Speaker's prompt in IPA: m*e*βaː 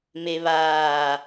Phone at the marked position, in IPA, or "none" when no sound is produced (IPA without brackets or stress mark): e